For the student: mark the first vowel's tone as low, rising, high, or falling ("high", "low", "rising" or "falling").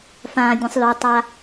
low